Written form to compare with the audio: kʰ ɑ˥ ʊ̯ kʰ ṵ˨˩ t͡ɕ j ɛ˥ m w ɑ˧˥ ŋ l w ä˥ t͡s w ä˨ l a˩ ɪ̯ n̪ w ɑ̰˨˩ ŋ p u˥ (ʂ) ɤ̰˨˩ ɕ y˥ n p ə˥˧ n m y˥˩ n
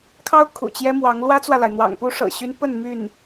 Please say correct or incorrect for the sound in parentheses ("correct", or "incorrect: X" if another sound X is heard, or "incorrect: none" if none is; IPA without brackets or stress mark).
correct